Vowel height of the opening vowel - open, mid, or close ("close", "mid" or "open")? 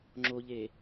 mid